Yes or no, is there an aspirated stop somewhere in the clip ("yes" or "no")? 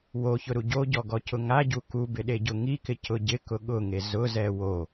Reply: no